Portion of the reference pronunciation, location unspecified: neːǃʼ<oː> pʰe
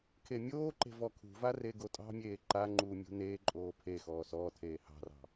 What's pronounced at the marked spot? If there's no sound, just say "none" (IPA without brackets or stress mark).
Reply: oː